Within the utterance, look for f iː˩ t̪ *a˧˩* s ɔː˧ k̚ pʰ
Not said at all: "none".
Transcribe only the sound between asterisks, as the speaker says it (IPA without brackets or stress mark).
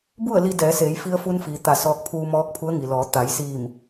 a˧˩